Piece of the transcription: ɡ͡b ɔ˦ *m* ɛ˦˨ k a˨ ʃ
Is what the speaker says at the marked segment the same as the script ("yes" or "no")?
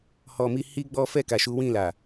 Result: no